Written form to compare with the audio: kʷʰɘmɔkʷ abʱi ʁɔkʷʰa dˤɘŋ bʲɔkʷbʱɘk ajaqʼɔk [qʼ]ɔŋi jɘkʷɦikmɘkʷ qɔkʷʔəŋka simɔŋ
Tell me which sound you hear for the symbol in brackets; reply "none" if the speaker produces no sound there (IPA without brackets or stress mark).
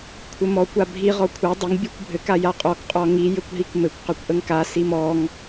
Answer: qʼ